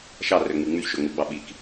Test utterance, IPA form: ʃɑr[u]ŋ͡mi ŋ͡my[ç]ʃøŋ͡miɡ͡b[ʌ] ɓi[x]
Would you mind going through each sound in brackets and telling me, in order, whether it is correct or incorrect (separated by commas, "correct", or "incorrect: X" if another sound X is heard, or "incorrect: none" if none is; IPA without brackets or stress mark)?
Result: incorrect: ø, correct, incorrect: ɑ, incorrect: k